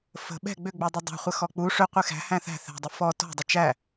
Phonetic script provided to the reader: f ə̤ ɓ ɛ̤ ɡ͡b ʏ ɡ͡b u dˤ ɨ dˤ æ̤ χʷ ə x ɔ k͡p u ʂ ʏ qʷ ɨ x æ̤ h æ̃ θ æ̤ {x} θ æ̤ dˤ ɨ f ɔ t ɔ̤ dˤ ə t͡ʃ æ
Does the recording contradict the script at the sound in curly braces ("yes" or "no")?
yes